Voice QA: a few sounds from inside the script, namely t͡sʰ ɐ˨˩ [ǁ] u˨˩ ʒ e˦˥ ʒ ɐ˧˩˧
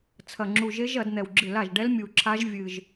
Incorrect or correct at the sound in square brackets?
incorrect: ŋ͡ǁ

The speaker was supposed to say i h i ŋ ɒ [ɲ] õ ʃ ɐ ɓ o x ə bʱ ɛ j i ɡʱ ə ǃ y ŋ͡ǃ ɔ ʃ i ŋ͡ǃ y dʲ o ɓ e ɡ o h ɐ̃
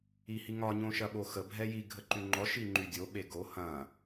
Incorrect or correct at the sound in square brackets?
correct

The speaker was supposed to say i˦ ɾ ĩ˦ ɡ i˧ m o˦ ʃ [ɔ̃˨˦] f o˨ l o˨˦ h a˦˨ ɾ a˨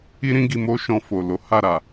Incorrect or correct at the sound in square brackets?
incorrect: ɔ̃˧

